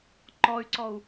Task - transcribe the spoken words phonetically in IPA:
ǃ ɔ y̯ ǀ ɔ u̯

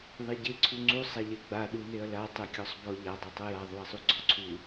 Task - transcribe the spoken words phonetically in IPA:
ðˤ e ɟ e ǀʰ u ŋ͡ǀ u sˤ a ʎ ɛ ɡ͡b a ɗ u n e ɐ̯ l a tˤ ɛ kʲ ɔ sˤ b ɔ ʎ a dˤ a tˤ ɤ j a ðˤ u ɐ̯ sˤ u ɡ͡ǀ ɔ ǀʰ u

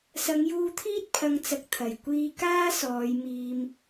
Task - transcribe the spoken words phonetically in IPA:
s ɐ˨˧ ŋ j uː˧ t̪ʰ iː˥ t̚ pʰ ɐ˨˧ ŋ t͡s ɐ˨ k̚ t̪ʰ ɐ˨˩ j kʷ iː˧ k aː˥ s ɔː˨˧ j m iː˧ m

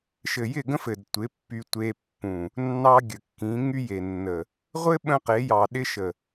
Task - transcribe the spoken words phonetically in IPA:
ʃ ɘ˨ j ɪ˦˨ ɡ ə̃˦ f ɘ˨ d tʷ ɪ˨˦ pː y˦ tʷ e˦ pː ũ˨ | nː ɑ˦ ɡʲ ə˨ kː ĩ˨˦ ŋ y˦ j e˨ nː ə˨ | ʁʷ ɘ˦ ɓ ə̃˦ q e˨˦ j ɑ˨ ɗ ɪ˦ ʃ ə˨

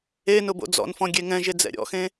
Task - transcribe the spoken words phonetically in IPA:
e n ʊ b o̰ d͡z ɔ̰ n f ɔ̃ ɡʲ e ŋ ɛ̃ ʒ e d͡z ɛ̰ ɾʲ ɔ̰ x ẽ

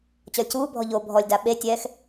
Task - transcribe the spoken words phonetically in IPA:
t͡ɕ ɔ lʲ c uː bʱ ɔ ʎ o bʱ ɔ lʲ d a ɓ e tʲ ɛː x

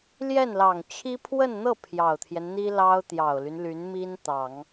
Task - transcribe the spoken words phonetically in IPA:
l j ɛ˥˩ n l ɑ˨˩ ŋ t͡ɕʰ i˥ pʰ w ə˥˧ n n̪ ɤ˥˩ pʰ j ɑ˨˩ ʊ̯ t̪ʰ j ɛ˦ n n̪ i˥ l ɑ˥ ʊ̯ t̪ j ɑ˨˩ ʊ̯ l y˦ n l y˧˥ n m i˥ n t̪ ɑ˨˩˦ ŋ

